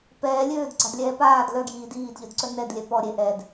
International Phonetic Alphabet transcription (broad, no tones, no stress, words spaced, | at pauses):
pɛː lʲøːdɡ͡ǀadlʲɛː paːd lœɡjiː diːdʎœdǀœ nɛdlʲɛ pɔ ɾʲe ʔɛd